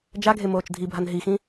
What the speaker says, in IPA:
d͡ʒ a ɡʱ e m oː t͡ʃ dʱ i bʱ a n ɦ i x ĩ

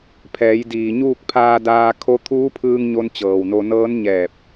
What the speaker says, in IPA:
pʰ ɛː˩˧ j d iː˩ ɲ uː˥˨ k̚ pʰ aː˧ d aː˧ kʰ o˧˥ t̪ʰ uː˧˥ pʰ ɯː˧ ŋ ɲ o˧ n t͡ɕ ɤː˩ w n o˧ n ɤː˧˥ n ɲ ɛː˧˩ p̚

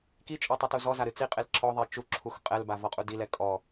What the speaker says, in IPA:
k i t͡ʃʼ ɔ tˤ ɨ t u z ɔ z a ɾ ɨ t͡s i qʼ e l ǁʰ ɔ ðˤ e t͡ʃ u ǁʰ u x qʼ ɛ l b a v ɔ qʼ u d i l ɛ kʼ ɔ

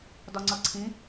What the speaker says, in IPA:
d ɒ ŋ͡ǀ ʌ ǀʰ ĩ

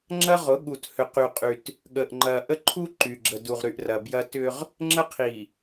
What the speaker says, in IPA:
ŋ͡ǁ ɐ˦ ʁ ʊ˨˦ ɠ u˨ t h ʏ˨ q y˨ qʼ y˨ t | ɠ ə˨ ʔ ŋ͡ǃ ɐ˨ ʔ ə˦ ǃʰ u˦ ǃ y˨ ɡ͡ǁ ə˨ d u˨ ʁ ɾ y˨ ʔ r ɐ˨ b j ɐ˦ t ʏ˦ ʁ | ŋ͡ǁ ə˦ qʰ i˨

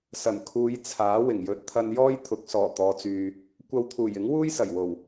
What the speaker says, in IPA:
s ɐ˨˩ n kʰ uː˨˧ j t͡sʰ aː˨˥ w ɪ˨˩ ŋ j ɵ˨ t̚ t̪ʰ ɐ˧ n j ɔː˥ j t̪ʰ ʊ˨˥ k̚ s ɔː˨˩ t̪ ɔː˨˧ t͡s yː˨ | kʷ ɐ˧ w t̪ʰ uː˨˩ j ɪ˨˥ ŋ w uː˥ j s ɐ˨˩ j w o˨˩ w

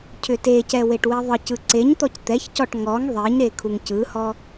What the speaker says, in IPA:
cʰ ʏ t e c ɛ w e ʈ w e ðˤ ɯ c ɯ ǀ e ɲ t̪ ɔ c t̪ ɛ ç c ɔ ʈ ŋ ɔ ŋ ðˤ e ɲ ɾ e kʰ u ŋ c ɯ h ɔ

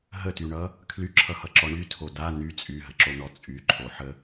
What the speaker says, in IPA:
ɦ ə t y ɳ ʌ | kʰ l y ǁʰ ʌ h ʌ ǁ ɔ ɳ y tʰ o d a n y t͡sʼ y ɦ ə ǁ o n ɔ t͡sʼ y ǃʰ o ħ ə

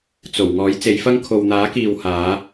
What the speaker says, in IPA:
t͡s o˨˩ w ŋ ɔː˨˥ j t͡s e˨˥ j f ɐ˥ ŋ kʰ o˨ w n̪ aː˨˥ k iː˨ w h aː˨˥

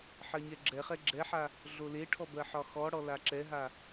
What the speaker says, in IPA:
ħ ɜ ɲ ɛ ɡ͡ǁ ɛ χ ɛ ɡ͡ǁ ɛ ħ a | ɮ o l e ʈʰ ɔ b ɜ ħ ɒ x ɔ ɽ ɔ l a ǁ ɛ ɦ a

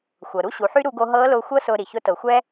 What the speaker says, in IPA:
xʷ ɤ˩ ɾ u˥ ɕ u˩˧ ħ y˥ ɾ u˧ ɡ o˧ ɦ ɤː˧˥ l ʊː˧ xʷ ɤ˥ s ʊː˧ ɾ i˩ ç ʊ˧˥ t ɤ˩˧ xʷ ɛː˥

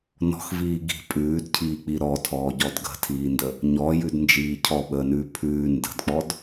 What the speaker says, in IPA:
n ɔ̤ x v iː ɡ i̤ pʼ ʉː d cʰ iː k͡p i ɾ ɔ tʰ ɔː ɟ ɔ d ɡ ə̤ tʰ iː n d ə | ɲ ɔ j ʉ d n d͡ʒ iː cʰ ɔ ɓ əː n ʉː pʰ ʉː n d ə̤ d k͡p ɔ d

